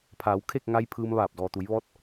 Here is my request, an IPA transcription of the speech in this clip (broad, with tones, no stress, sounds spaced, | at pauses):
pʰ aː˩˧ w kʰ e˥˨ k̚ ŋ a˧ j pʰ ɯː˧ m ʋ aː˧˩ p̚ d ɔː˩ t̪ u˩˧ j ʋ ɔː˧˥ t̚